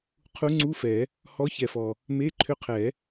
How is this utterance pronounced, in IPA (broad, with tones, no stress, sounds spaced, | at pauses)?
qʰ u˧˥ ŋ͡ǀ u˧˥˧ f ɛ˨˩˦ | h ɔ˧˥ ç ɛ˨˩ f ɔ˨˩ | m e˧˥˧ ǃʰ ʏ˧˥ qʰ ɛ˨˩˦